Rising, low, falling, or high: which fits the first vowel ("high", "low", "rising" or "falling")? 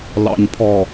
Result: low